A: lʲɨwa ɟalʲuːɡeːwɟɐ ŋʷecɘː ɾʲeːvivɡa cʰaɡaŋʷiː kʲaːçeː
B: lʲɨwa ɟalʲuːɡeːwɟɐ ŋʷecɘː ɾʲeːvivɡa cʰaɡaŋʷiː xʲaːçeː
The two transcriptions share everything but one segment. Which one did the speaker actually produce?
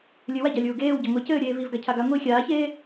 B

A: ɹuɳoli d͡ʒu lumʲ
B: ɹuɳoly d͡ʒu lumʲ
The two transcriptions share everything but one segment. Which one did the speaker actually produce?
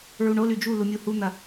B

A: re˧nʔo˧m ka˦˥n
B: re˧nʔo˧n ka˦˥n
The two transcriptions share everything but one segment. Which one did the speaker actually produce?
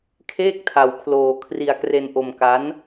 A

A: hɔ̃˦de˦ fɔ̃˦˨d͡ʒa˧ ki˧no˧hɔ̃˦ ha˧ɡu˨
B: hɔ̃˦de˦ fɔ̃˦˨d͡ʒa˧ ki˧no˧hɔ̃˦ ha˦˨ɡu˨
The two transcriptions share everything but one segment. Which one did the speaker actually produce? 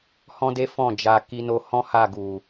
B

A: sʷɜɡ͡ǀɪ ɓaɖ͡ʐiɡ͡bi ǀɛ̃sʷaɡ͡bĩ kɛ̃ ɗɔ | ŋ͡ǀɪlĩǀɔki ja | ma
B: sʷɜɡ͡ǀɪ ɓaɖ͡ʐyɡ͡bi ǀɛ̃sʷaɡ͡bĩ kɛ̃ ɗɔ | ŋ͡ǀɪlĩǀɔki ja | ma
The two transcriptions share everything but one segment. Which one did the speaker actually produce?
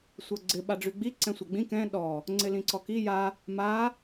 B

